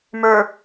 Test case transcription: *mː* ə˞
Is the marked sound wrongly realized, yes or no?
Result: yes